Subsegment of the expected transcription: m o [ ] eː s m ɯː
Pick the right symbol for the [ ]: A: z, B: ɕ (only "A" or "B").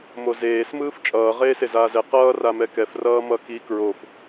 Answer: A